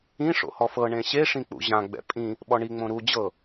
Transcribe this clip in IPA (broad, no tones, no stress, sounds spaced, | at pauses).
ĩ ʂ o̰ h ɔ f ɤ ɳ ẽ ɕ e ʂ ĩ k͡p ṵ ʑ ã ɡ͡b ɛ̰ pʼ ĩ | ɓ ɔ ɳ i ŋ͡m õ ɾ u d͡ʑ ɤ